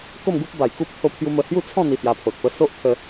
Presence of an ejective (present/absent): absent